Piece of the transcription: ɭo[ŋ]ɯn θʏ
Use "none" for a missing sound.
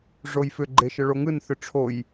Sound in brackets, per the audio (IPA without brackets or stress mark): ŋ